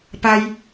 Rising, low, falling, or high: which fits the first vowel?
high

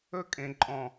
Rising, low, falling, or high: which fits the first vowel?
high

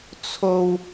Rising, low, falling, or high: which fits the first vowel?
low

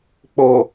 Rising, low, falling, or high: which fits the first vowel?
low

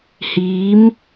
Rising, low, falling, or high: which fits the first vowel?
rising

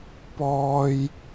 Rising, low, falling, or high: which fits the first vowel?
low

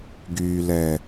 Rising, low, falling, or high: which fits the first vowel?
low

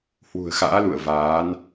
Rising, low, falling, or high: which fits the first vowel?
low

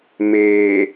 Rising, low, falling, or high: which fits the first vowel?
low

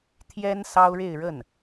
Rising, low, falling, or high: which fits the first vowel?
high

